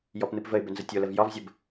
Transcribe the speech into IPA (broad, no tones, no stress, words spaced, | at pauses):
jɔpnɨpvəɪ̯bʏ nzətʲoləv jɒvzʲəb